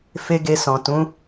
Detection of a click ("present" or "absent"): absent